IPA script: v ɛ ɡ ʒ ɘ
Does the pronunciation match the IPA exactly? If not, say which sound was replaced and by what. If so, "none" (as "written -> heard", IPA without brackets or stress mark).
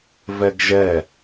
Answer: ɘ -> ɛ